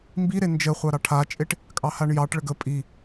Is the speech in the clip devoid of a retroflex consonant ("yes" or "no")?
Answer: no